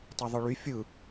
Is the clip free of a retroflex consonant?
no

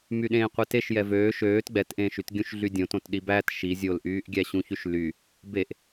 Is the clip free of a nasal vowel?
no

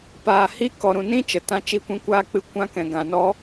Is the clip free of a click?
yes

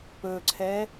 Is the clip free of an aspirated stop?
no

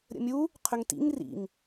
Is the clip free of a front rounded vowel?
no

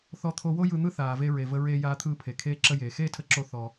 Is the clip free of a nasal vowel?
yes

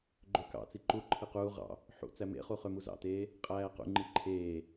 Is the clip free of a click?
no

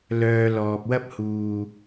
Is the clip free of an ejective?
yes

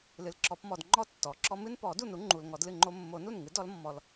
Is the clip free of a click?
no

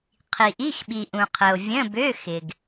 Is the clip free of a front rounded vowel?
no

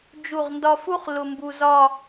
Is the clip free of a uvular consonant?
no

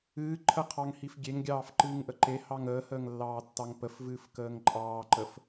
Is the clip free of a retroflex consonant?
yes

